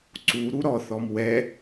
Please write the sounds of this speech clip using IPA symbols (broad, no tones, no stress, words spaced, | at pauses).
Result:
ǀu ɾuɾɔθɔm wɛ